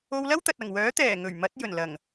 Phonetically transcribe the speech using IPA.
o˧wlɐ˥wt̪ɐ˨t̚ ɐ˨˩ŋwœː˨˥ t̪ɛː˨˩ ŋɵ˨˩ɥ mɐ˨˥t̚jɵ˨˩nlɐ˨˩ŋ

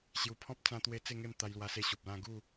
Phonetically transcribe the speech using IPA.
ɕju˧ pʰɔ̃˦p̚ t͡sã˦ t̪we˦t͡se˥˧ŋe˥˧m t̪a˧jlwa˧se˧ ɕu˨p̚lã˥˧ ɡu˥˧

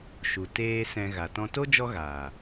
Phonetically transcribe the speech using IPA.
ʃu˨ teː˧ sɛ̃˧ ɣa˨tɔ̃˧to˦ d͡ʒɔ˦ɣaː˨

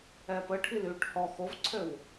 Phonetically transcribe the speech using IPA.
ɛːpə ʈʰilyːʈhɔ xovǀʰøw

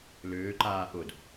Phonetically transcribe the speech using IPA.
lʏːǃaː ʔʊd

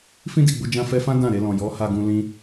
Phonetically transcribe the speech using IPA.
fĩ˦di˦˨ɡ͡bu˧ d͡ʒã˧fɛ˧fã˦ dã˦˨ɾe˧lɔ̃˨ jɔ˨˦ha˧ɡũ˧ lĩ˧

